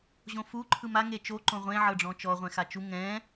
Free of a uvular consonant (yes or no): no